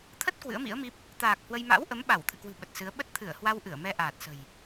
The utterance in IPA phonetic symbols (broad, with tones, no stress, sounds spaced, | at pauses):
t̪ʰ ə˦˥ t̚ k w ɨ̰˧˥ ə̯ m ḭ˧˥ ə̯ m i˦˥ p̚ | t̪ aː˨˩ k̚ h w ə˧ j m a̰˧˥ w ʔ ə˨˦ m ɓ a˧˩ w t̪ʰ ɨ̰˧˨ k w ɨ̤˨˩ ɓ ə˨˩ t̚ s ɨ˨˦ ə̯ ɓ ə˦˥ t̚ t̪ʰ ɨ˧˩ ə̯ h w a˧ w ʔ ɨ˧˩ ə̯ m ɛ˧ ʔ aː˨˩ t̚ s ə̤˨˩ j